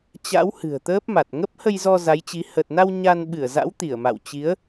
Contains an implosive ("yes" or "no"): yes